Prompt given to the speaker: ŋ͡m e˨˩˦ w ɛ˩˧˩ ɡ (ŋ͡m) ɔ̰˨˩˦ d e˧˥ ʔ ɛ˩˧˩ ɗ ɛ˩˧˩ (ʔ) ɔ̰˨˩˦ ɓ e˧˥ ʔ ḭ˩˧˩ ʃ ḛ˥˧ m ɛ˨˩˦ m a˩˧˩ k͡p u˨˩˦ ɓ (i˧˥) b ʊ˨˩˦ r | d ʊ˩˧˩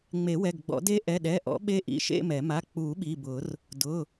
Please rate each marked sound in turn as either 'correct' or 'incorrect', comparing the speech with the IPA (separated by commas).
incorrect, correct, incorrect